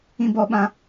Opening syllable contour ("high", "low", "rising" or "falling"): high